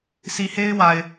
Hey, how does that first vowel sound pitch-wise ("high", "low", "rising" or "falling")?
low